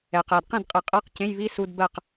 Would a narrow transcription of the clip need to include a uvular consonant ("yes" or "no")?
yes